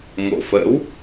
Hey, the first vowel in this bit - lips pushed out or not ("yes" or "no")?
yes